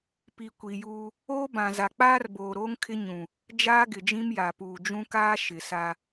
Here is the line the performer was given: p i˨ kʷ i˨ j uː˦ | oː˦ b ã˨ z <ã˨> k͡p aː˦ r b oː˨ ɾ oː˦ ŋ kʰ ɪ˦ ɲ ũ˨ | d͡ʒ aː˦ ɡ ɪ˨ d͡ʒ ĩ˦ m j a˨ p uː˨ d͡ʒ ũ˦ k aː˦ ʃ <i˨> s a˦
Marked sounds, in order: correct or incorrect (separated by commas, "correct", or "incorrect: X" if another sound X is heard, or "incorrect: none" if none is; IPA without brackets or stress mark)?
incorrect: a˨, incorrect: ɪ˨